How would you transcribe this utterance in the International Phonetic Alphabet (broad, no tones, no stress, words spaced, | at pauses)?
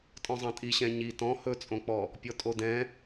tʼɔ̃zˤɑ̃tʼi ɕɛ̃ɲi tɔ̃ hɵt͡sʼõk͡pɔ | pʲɔtʼodɛ̃